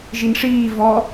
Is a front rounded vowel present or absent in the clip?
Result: absent